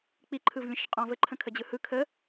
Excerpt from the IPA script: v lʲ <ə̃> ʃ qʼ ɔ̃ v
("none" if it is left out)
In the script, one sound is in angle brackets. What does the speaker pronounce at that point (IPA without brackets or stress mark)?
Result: ə̃